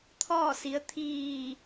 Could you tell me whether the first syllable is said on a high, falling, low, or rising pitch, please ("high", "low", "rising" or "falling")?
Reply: falling